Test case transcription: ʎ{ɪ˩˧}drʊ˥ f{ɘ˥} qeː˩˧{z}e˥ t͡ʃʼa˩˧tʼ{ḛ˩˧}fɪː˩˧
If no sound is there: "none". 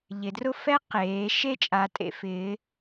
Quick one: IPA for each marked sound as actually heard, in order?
ɪ˩˧, ɛ˥, ʃ, ḛ˩˧

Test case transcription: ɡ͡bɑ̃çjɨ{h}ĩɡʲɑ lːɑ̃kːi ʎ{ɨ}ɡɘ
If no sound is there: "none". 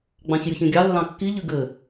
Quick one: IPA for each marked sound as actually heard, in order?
ç, ɨ

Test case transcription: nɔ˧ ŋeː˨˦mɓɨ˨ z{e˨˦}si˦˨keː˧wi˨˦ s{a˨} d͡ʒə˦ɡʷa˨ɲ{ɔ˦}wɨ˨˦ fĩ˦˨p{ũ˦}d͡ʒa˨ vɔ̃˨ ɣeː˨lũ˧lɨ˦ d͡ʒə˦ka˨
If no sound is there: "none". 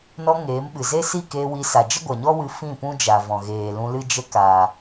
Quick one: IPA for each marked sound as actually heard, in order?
e˦, a˨, ɔ˦, ũ˦

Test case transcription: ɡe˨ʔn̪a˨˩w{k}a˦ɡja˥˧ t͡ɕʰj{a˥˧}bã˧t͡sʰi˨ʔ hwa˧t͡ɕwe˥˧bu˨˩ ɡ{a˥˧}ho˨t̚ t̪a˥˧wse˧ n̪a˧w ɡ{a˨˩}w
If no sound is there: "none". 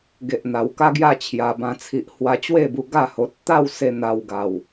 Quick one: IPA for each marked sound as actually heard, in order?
k, a˨˩, a˥˧, a˨˩

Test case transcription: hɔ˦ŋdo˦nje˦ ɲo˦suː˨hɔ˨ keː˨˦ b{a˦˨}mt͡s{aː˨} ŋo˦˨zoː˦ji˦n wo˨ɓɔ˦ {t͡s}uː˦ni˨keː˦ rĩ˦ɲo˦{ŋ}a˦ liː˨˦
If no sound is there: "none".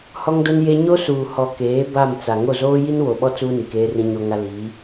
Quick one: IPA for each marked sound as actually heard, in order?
a˦˨, a˨, t͡s, ŋ

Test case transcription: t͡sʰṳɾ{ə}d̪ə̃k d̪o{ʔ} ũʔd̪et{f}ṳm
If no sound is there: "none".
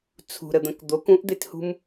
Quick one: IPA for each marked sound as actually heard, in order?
ə, k, h

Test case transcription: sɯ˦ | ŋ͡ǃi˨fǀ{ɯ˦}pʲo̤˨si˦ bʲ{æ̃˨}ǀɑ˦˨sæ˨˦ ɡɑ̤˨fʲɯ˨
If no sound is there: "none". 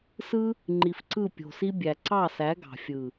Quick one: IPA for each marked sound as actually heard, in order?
ɯ˦˨, æ˨

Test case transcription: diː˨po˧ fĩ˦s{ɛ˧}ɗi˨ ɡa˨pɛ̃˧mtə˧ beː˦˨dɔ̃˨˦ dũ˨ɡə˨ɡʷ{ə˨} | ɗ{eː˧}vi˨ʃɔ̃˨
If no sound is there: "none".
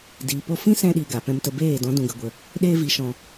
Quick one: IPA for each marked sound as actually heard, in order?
ɛ̃˧, ə˨, eː˧

